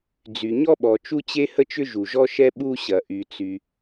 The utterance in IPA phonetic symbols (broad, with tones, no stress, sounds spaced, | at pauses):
d͡z y˩ ɲ ɔ˥ ɓ ɔ˩ t͡ʃ u˥ t͡ɕ e˥ h ə˥ t͡ʃ ʏ˥ ʒ u˩ ʒ ɔ˥ ʃ ɛ˥ ɓ u˥ ɕ ɐ˩ ʔ y˩ t͡s y˩